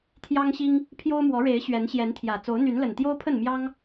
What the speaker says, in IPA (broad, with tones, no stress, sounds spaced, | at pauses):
t̪ʰ j ɑ˦ ŋ ɕ i˦ ŋ | pʰ j o˦ ʊ̯ m w ɔ˨˦ ɻ e˨˦ ɪ̯ ɕ ɥ ɛ˨˦ n ɕ j ɛ˨˦ n t̪ʰ j ä˨˩ t͡s o˨˦ ʊ̯ n̪ y˨˦ n l ə˨˩ n t̪ j o˦ ʊ̯ pʰ ə˥˨ n m j ɑ˦ ŋ